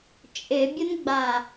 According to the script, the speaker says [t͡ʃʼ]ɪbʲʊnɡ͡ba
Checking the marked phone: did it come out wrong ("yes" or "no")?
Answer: no